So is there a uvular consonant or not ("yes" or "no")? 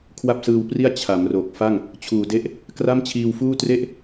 no